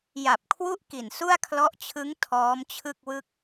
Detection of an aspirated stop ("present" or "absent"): present